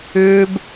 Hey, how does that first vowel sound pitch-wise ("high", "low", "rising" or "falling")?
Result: high